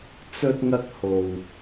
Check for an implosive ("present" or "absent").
absent